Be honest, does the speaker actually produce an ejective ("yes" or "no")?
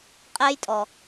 yes